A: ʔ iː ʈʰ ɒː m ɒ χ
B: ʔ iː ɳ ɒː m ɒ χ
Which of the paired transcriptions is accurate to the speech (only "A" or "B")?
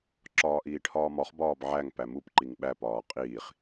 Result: A